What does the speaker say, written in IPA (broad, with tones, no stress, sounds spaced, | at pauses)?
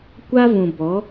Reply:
kʷ a˦ v ũ˨ b ɔ˨˦